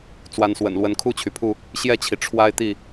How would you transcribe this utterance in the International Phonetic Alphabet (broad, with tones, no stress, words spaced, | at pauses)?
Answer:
t͡swa˨˦nswə̰˨˩n lwə˨˦nkʰu˥˨t͡ɕʰy˩pʰu˥˨ | ɕjɛ˥˨t͡ɕʰi˩ ʈ͡ʂʰwa˦ɪ̯t̪i˥˨